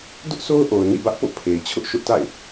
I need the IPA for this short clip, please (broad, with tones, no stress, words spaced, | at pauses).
dʊ˦ʔso˦ʊ̯ʔo˨ʊ̯ nḭ˦˨bä˦ʔpo̰˦˨ pʰe˨ɪ̯t͡ɕʰʊ˦ʔ ʃʊ˦ʔta̰˦˨ɪ̯